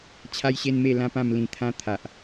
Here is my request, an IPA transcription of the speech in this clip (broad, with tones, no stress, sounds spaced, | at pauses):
t͡ɕʰ a˦ j ɕ e˦ n m e˥˧ l ã˦ p ã˥˧ m l ĩ˧ t̪ʰ ã˦ t̪ʰ a˨ ʔ